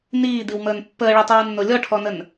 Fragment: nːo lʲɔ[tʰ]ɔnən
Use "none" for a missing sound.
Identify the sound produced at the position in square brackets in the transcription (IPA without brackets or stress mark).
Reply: ʈʰ